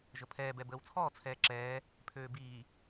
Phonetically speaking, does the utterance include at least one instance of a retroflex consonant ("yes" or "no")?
no